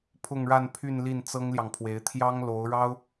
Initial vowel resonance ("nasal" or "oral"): oral